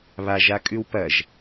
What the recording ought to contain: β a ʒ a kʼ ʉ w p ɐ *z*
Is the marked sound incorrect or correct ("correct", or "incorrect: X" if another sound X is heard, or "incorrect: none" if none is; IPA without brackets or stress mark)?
incorrect: ʒ